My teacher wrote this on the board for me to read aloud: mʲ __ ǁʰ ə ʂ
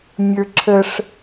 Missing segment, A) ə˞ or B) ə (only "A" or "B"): A